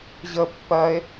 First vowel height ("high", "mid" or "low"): mid